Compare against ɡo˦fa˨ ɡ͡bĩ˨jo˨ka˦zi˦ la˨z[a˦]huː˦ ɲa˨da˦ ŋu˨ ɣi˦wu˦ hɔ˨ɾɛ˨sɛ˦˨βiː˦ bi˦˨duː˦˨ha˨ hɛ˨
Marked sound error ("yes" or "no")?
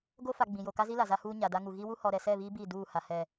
no